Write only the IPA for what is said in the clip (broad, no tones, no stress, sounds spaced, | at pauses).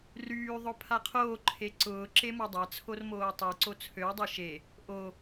r yː ðˤ ʊ pʰ a qʰ oː ǃʰ e ǀ ʊː ǁ e m o dˤ a t͡sʰ o r m oː tˤ y ǀ o t͡sʰ ø w dˤ e ʃ e | ʔ o